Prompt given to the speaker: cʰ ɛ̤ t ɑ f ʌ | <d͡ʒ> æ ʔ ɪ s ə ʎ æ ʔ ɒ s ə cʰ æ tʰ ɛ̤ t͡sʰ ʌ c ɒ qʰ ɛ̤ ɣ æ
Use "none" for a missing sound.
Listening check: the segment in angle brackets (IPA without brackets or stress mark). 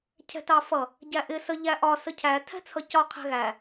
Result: ɟ